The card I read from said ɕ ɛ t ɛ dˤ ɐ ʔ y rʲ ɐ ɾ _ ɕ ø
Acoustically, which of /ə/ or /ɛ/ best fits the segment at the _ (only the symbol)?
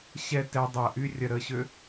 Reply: ə